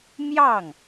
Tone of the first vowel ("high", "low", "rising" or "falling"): falling